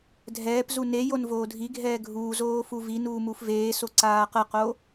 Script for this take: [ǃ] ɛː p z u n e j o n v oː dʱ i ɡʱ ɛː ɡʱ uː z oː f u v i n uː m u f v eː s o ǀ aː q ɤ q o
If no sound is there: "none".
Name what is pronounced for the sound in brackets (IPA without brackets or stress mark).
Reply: dʱ